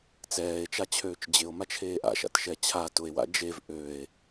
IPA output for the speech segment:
t͡s ɛː e̯ t͡ʃ a t͡ɕʰ øː t͡ʃ d͡ʑ ɪ o̯ m a t͡ʃʰ eː ʔ a̰ ʃ a̰ t ʃ ɛ t͡ɕʰ a t ʊ e̯ w a̰ d͡ʒ e v ʔ ø e̯

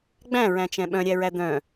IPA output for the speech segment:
ɡ͡b æ̃ ɹ æ̃ t͡ʃ ɛ̃ ɓ œ̃ ɾʲ æ ɹ æ d̪ œ̃

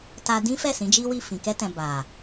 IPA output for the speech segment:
t a˧ d ĩ˦ f ɛ˦˨ s ĩ˨˦ d͡ʒ i˦ w i˦˨ f ĩ˨ k ɛ˧ t ɛ̃˨ b a˨

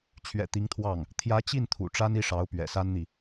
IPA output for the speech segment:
t͡ɕʰ ɥ ɛ̰˨˩ t̪ i˧˥ ŋ t̪ʰ w ɑ˥˩ ŋ | t̪ʰ j ä˧˥ t͡ɕ i˥˩ n t̪ʰ ṵ˨˩ ʈ͡ʂ a˥ n i˥˩ ʂ ɑ˧˥ ʊ̯ p ɥ ɛ̰˨˩ s a˥ n n̪ i˨

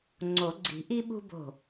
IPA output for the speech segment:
ŋ͡ǀ o˨˩˦ ɡ͡ǀ i̤˨˩˦ ʔ i˦ ɓ ṳ˦ b o̤˧˩

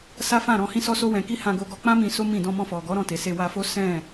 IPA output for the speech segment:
s a˦ f ã˦˨ ɾ ɔ̃˧ h ĩ˦ s ɔ˦ s o˦ w ɛ̃˧ k i˦ h ã˧ ɡ o˧ ɡ ɔ˧ k͡p ã˦ m ĩ˧ s o˦ m ĩ˦˨ d ɔ̃˧ m ɔ̃˧ f ɔ˨ ɡ ɔ˨˦ ɾ ɔ̃˧ t e˨ s e˧ w a˧ f o˦ s ɛ̃˦˨

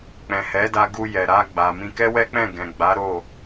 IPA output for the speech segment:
k͡p ɛ̃˨ h ɛ˨˦ d a˧ ɡ u˧ j ɛ˨ ɾ a˧ ɡ͡b a˨ m ĩ˧ k ɛ˦ w ɛ˦ k͡p ɛ̃˦˨ ɡ ɛ̃˨ ɡ͡b a˨˦ ɾ o˦˨

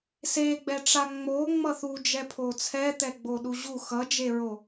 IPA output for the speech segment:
s e ɡ͡b ɛ ʈ͡ʂ a ŋ͡m o ŋ͡m ʌ θ u d͡ʒ ɛ pʰ o t͡sʰ ɛ t̪ ɛ ɡ͡b o ɗ u ʑ u x ʌ d͡ʒ e ɹ o

